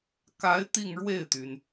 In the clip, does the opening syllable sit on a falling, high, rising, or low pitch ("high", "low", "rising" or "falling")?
rising